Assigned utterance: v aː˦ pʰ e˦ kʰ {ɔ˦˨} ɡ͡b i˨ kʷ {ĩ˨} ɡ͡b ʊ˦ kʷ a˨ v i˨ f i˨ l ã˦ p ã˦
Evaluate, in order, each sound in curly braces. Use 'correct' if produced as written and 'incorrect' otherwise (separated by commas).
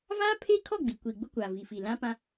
correct, incorrect